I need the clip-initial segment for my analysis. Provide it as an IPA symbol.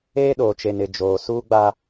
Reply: eː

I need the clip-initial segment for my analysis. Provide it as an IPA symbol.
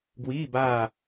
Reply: ɡ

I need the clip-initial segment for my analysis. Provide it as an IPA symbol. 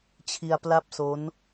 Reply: t͡ɕʰ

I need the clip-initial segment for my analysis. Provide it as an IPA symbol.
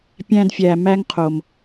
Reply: pʲ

